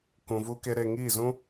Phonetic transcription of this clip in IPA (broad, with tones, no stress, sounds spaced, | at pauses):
k ũ˧ v u˦ k e˦ ɾ e˧ ŋ iː˦˨ z ũ˦